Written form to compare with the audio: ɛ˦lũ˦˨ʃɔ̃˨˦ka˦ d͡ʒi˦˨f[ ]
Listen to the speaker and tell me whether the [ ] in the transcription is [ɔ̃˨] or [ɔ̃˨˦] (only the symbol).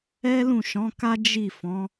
ɔ̃˨˦